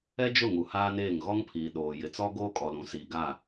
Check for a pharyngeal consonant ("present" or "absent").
absent